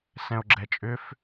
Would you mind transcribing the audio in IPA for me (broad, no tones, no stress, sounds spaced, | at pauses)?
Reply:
s ɛ̃ o̯ ɡ͡ǁ ɛ t͡ʃʼ ʏ f